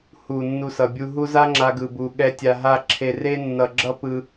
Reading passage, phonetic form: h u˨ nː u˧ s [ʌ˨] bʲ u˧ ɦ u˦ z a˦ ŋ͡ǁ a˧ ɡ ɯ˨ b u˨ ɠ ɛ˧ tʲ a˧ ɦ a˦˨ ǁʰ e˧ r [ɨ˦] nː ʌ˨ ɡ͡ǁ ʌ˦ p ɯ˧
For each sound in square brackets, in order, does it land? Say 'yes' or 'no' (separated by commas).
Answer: yes, no